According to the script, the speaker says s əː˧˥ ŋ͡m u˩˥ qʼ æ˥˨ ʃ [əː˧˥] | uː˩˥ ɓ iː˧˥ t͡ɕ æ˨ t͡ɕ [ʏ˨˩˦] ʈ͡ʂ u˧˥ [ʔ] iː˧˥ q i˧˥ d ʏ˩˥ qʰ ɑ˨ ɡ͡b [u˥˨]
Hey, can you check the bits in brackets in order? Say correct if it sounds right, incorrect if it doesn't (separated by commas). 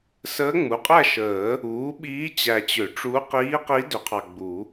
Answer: incorrect, correct, incorrect, incorrect